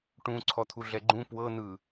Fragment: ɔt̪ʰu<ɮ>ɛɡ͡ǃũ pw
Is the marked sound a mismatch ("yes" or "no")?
no